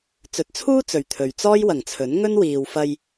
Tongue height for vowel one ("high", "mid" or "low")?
mid